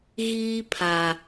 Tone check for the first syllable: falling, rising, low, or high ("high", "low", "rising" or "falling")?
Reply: high